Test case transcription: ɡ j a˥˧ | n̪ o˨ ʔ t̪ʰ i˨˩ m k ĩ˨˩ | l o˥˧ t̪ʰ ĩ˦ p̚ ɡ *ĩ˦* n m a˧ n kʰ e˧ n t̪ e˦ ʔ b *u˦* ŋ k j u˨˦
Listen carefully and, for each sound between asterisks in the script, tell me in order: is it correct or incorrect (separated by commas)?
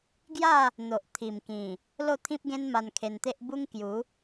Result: incorrect, correct